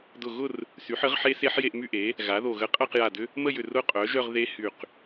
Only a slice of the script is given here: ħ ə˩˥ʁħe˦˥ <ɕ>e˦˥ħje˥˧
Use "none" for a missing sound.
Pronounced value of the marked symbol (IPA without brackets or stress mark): s